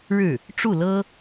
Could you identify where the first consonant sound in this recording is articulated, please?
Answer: retroflex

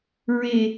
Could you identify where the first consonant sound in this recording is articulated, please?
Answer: alveolar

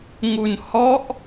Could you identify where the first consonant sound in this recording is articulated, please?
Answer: velar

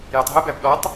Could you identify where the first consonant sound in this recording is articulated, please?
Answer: palatal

